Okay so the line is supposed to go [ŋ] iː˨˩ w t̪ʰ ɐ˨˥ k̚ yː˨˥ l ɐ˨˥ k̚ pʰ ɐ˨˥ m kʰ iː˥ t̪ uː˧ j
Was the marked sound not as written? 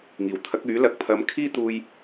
no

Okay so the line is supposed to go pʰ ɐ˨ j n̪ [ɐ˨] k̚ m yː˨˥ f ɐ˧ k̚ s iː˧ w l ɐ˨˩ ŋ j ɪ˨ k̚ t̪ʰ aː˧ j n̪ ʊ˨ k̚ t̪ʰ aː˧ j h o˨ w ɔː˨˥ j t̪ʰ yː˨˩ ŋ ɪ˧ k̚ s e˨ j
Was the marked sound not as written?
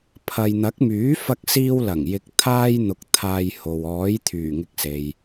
yes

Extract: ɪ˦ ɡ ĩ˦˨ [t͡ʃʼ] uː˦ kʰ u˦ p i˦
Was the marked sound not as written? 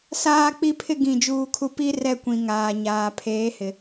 yes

